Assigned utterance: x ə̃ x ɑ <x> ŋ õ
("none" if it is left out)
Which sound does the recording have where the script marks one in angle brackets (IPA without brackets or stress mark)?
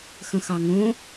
none